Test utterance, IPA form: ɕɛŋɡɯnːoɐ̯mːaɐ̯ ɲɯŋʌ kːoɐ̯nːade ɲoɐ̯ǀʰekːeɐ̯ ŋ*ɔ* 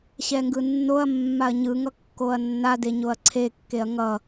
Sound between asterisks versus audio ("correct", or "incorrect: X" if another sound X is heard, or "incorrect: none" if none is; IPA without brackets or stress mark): incorrect: ʌ